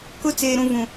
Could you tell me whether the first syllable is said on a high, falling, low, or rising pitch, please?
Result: high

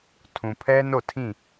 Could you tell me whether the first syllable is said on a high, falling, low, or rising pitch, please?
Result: low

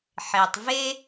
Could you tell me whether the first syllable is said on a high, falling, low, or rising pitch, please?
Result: low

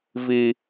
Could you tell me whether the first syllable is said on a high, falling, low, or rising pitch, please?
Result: high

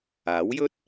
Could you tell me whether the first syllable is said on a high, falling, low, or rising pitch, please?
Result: rising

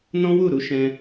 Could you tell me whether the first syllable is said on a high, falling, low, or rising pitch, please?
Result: high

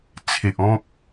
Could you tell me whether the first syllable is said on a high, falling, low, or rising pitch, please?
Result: low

